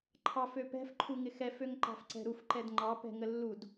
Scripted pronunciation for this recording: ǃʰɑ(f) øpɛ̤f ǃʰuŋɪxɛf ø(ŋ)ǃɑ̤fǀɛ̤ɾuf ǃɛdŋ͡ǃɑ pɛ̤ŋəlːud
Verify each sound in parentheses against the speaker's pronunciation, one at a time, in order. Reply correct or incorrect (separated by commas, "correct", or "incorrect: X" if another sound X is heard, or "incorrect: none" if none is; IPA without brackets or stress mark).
correct, correct